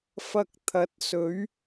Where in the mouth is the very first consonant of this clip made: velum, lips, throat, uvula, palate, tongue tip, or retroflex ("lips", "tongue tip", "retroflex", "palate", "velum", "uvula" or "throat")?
lips